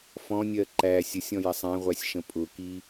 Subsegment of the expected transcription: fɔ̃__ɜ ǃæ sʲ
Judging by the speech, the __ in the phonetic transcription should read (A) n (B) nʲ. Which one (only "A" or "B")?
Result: B